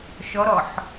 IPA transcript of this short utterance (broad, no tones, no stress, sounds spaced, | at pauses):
ʃ ɔ ɾ ɔ ħ